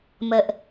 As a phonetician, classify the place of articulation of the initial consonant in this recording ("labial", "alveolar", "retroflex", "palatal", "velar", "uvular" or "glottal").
labial